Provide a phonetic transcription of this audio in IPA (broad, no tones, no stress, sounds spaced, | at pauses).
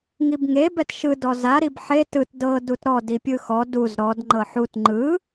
ŋ i b ŋ e b ɛ t ʃ ɯ d ɔ z a ɾ i b ħ e t ɯ t d ɤ d u t ɾ ɔ d i pʲ ɯ x ɔ d u z ɾ ɔ d ŋ͡ǃ ɤ ħ u t ŋ͡ǃ ɯ